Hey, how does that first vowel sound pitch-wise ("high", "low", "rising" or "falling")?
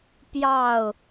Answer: falling